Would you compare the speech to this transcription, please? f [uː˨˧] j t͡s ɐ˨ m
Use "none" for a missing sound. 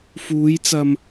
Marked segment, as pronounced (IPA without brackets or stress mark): uː˨˧